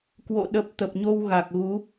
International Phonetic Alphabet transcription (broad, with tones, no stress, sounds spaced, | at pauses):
k w o̰˧˨ ɗ ə˨˩ p̚ t̪ ə˨˩ p̚ ɲ o˧ w ɣ a˨˩ k̚ ɣ u˨˦